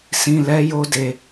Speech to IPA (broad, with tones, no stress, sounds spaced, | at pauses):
s ĩ˧ l ɛ˦ j o˦ d e˧